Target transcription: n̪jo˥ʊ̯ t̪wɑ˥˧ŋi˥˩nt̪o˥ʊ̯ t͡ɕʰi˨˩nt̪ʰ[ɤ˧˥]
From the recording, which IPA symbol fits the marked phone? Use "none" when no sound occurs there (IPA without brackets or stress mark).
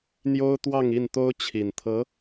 ɤ˧˥